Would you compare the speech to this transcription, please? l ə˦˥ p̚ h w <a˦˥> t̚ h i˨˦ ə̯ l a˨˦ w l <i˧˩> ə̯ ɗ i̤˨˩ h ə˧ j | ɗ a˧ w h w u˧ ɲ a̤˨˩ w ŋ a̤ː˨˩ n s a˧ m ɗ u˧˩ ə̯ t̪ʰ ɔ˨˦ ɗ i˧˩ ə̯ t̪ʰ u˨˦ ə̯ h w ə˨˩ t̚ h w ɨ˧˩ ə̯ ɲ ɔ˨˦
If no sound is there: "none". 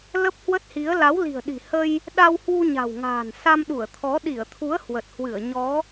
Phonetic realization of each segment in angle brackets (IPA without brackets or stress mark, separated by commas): ə˦˥, i̤˨˩